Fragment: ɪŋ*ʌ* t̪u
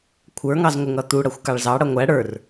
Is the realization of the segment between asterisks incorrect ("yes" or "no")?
no